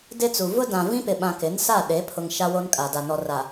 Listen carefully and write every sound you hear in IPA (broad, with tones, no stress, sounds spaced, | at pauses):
d ɪ˦ t͡s u˨ v ʊ˦ d ã˨ v ĩ˦ p ɪ˨ ɓ ã˨ k ɪ˨˦ n s a˦˨ ɗ e˨˦ pʰ ʊ˨ ŋ ʃ a˦ w o˦ n kʼ a˨ d a˨ n ɔ˨ r a˨